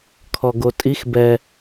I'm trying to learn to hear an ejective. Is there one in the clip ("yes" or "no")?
yes